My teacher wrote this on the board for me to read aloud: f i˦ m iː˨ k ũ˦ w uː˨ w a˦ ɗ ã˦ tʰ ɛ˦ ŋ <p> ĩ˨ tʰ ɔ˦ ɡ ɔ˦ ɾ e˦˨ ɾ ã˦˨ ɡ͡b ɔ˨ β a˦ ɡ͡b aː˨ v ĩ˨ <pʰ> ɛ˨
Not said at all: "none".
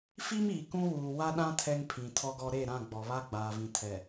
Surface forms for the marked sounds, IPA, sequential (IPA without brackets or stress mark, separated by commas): pʰ, tʰ